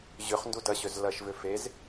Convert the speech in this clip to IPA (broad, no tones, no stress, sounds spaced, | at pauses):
ʑ ʏ χ n d u d ɐ ɕ ø z l ɐ ʃ v ʏ f e z